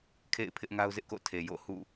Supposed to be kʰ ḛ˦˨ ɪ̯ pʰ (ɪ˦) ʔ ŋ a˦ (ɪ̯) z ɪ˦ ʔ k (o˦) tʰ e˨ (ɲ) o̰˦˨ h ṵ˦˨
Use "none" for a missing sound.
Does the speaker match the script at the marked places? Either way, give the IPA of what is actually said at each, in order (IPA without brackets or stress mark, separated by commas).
ɪ˦, ʊ̯, o̰˦˨, j